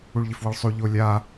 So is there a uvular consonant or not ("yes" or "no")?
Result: no